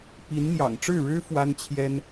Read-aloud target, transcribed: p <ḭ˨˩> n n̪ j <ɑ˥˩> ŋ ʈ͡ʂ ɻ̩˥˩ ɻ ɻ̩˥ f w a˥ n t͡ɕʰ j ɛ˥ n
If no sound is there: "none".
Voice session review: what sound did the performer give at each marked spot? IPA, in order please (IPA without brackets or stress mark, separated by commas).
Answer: i˧˥, ɑ̰˨˩